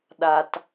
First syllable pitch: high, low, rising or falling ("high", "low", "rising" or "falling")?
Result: low